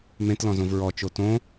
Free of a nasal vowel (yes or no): no